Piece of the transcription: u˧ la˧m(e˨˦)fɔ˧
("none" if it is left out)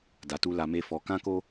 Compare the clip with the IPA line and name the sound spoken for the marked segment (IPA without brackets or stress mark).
e˦